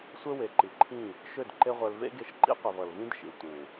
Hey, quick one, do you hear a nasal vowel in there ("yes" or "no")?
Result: yes